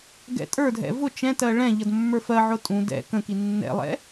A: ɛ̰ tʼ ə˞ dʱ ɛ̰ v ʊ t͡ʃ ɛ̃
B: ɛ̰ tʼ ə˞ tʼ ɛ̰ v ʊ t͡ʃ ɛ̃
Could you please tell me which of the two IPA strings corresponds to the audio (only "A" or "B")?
A